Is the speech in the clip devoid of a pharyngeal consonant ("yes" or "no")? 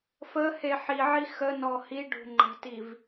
no